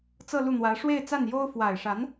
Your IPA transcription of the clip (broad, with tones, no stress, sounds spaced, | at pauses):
t͡s ɤ˥˧ l u˥˩ n̪ w ä˧˥ ʂ w e˥˧ ɪ̯ t͡s a˥˩ n j o˥ ʊ̯ f w a˨˩ ɪ̯ ʂ a˧˥ n